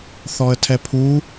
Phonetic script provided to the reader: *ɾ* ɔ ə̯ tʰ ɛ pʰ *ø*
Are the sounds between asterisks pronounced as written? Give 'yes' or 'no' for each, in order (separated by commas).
no, no